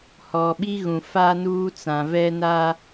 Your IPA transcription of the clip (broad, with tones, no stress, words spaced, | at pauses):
hɔ˨ɓi˦ ɣũ˨faː˦nuː˦ t͡sã˨vɛ˦ na˦